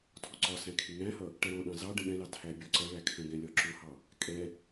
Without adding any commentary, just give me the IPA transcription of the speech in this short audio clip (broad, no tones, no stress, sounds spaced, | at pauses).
tʰ ɔ ǀ ɒ s æ̃ kʰ ɪ ŋ æ̃ h ʌ | ʈ ɛ ɾ ɔ̃ ɗ ɑ̃ z ɑ ɖ ə̃ ɠ ɛ̃ l ɑ tʰ æ bʲ ɒ ǀ ʌ ɭ æ kʰ ə̃ ɡ ɛ̃ lʲ ɒ ǁ ʊ h ɑ | kʼ ɛ